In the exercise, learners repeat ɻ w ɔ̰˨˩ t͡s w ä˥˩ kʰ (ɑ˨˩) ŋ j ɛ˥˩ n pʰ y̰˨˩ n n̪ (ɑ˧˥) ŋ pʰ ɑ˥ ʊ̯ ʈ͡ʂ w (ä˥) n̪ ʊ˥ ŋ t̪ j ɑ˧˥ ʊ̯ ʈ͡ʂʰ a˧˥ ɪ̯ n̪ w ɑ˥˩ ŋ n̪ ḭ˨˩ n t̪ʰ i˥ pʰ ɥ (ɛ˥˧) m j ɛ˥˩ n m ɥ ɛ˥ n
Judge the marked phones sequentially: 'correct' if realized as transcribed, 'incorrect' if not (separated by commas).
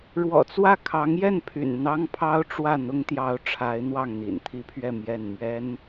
incorrect, incorrect, incorrect, correct